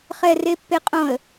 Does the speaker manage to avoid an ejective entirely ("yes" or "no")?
no